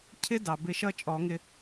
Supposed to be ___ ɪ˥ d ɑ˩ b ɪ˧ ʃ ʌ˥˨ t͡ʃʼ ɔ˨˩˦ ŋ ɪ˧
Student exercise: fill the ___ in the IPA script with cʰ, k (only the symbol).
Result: cʰ